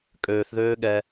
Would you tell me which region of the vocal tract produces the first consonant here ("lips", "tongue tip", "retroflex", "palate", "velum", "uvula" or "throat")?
velum